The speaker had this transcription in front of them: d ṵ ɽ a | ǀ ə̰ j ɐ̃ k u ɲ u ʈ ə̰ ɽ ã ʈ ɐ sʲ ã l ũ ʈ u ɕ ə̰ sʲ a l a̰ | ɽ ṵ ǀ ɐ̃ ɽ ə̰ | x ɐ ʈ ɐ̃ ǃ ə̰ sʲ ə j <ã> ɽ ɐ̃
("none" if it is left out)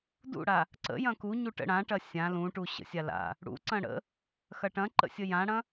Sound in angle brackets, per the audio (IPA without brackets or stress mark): ã